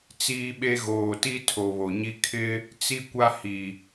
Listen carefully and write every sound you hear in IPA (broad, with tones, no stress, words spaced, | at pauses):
t͡siː˦ɓe˦ ɣoː˨ ti˦tʰo˨ βo˨ɲi˦ kʰɪ˦ | t͡si˦kʷa˦hi˨